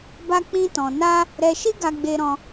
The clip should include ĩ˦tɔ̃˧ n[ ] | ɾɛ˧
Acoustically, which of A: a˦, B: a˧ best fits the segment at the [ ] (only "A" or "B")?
A